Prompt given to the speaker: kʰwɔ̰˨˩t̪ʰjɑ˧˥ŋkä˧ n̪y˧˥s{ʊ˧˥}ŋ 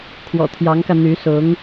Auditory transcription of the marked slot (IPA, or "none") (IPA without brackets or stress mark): ʊ˧˥